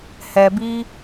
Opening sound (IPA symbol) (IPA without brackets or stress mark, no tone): h